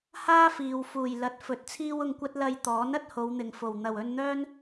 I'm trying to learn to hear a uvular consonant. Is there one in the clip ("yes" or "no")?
no